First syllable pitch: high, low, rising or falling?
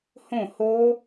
falling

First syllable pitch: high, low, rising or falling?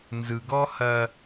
low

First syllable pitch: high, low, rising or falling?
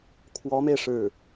rising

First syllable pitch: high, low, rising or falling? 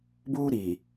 high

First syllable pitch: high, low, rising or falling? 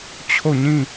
falling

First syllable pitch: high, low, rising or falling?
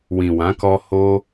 low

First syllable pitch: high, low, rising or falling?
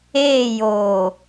falling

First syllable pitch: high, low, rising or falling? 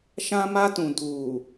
high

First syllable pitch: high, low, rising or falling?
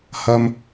high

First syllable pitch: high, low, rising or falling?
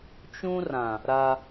high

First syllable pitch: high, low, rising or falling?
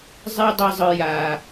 high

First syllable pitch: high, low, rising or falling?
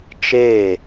falling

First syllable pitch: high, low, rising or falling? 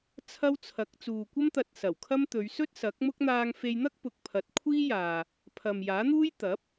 high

